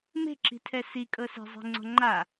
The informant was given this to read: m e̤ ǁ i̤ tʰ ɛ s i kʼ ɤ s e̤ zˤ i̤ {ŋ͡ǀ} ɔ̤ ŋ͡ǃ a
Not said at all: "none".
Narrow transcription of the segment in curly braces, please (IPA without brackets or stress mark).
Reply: ŋ͡ǀ